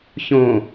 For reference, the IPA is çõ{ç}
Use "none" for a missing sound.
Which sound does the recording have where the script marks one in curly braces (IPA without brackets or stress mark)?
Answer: none